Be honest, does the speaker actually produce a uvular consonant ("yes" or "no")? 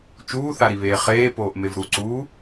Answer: yes